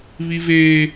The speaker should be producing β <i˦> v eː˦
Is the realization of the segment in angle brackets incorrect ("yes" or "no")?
no